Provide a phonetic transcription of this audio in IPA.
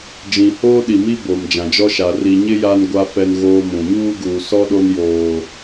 d͡ʒ ĩ˨ h oː˦ ɗ i˨ m i˦ b o˨ m d͡ʒ ã˨ d͡ʒ ɔ˦ ʃ a˨ r i˨ ɲ ɪ˦ j a˦ n ɡʷ a˦ f ɛ˦ n ɣ oː˦ m ũ˨ ɲ uː˦ ɡ uː˨ s ɔ˦ ɗ o˦ n j oː˦

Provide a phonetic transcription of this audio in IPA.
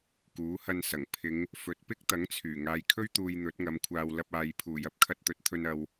k uː˨˥ h ɐ˧ n s ɐ˨˩ ŋ pʰ ɪ˨˧ ŋ | f ɵ˨˥ t̚ p ɪ˥ k̚ t̪ ɐ˨˥ ŋ t͡sʰ yː˨˩ ŋ aː˨ j kʰ ɵ˥ ɥ t̪ uː˨ j n̪ ɵ˨˥ t̚ ŋ ɐ˨˧ m kʷʰ aː˧ w l ɐ˧ p̚ aː˨ j pʰ uː˨˩ j ɐ˧ p̚ kʰ ɐ˧ t̚ t̪ ɵ˨ t̚ t̪ʰ ɵ˧ n ɐ˨ w

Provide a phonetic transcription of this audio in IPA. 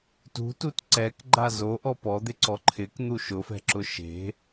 t ṳ t u t ǀ ɛ k ɡ͡ǃ a z o ʔ ɔ p ɔ d̪ ɪ ǀ ɔ ǃʰ ɪ k n̪ u ʃ ʊ f ɛ̤ ǁ ʊ ʃ e̤

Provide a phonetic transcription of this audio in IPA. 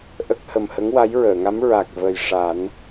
ʔ ə˦˥ k̚ h ə˨˩ m h ə˧˥ ŋ w a˧˥ j ɹ əː˨˩˨ ŋ a˧˥ m ɹ a˨˩ k̚ v ə˨˩ j ʂ a˨˩˦ n

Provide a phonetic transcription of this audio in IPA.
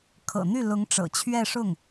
kʰ ɤ̰˨˩ n̪ y˥˩ l ʊ˧˥ ŋ ʈ͡ʂ ɤ̰˨˩ t͡ɕʰ ɥ ɛ˥˧ ʂ ʊ˥˩ ŋ

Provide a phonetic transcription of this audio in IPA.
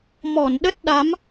m ɔ˧˩ n ɗ ə˦˥ t̚ ɗ a˨˦ m

